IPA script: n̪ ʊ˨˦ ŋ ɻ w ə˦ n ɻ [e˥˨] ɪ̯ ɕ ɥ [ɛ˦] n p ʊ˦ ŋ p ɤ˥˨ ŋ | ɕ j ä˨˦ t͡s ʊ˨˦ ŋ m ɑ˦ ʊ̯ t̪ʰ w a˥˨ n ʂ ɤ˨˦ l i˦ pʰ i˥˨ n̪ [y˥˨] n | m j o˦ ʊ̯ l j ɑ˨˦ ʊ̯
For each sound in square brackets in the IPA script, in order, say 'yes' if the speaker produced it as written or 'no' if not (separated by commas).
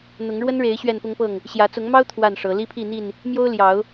no, no, no